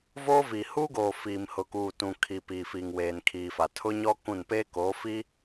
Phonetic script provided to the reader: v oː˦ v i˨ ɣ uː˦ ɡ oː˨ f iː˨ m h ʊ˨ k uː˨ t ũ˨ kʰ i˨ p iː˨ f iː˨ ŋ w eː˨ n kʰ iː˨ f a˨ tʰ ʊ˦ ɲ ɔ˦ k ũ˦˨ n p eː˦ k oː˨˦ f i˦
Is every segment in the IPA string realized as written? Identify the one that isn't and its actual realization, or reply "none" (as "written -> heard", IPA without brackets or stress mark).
ɣ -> h